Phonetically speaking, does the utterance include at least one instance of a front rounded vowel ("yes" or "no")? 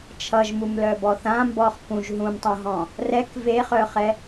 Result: yes